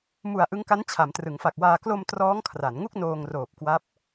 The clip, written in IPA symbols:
mu˨˩a̯ ʔɯ˦˥ŋka˦˥n t͡ɕʰa˩˦mtrɯ˩˦ŋfa˨˩k̚waː˧ klo˧m trɔː˦˥ŋkʰra˩˦nŋu˥˩k̚ noː˧ŋroː˨˩p̚kwa˦˥p̚

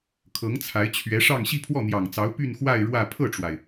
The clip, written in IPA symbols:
kʰɤ˧˥ŋt͡sʰa˧˥ɪ̯ t͡ɕʰɥɛ˧˥ʂɑ˥˧ŋ ɕi˥˧pʰwɔ˥˩n̪jɑ˨˩ŋt͡sɑ˧˥ʊ̯ py˥˧nxwa˥˧ɪ̯ ɻwä˥˧ pʰɤ˥˩ʈ͡ʂwa˩ɪ̯

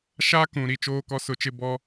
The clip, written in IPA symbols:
ʃa˦ kũ˨ɾi˨ t͡ʃoː˦kɔ˦sʊ˦˨t͡ʃɪ˦ bɔ˦

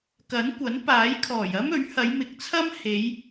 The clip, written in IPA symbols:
kɐ˨˥nkʷɐ˨˥n paː˨˥jkʰɔː˨˩jɐ˥m ɵ˨˥ɥhɐ˨˧j mɪ˨˥k̚t͡sʰɐ˥m he˨˧j

